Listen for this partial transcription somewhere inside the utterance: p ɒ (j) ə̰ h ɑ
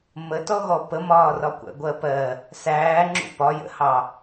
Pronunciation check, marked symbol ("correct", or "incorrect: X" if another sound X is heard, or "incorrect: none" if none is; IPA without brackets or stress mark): correct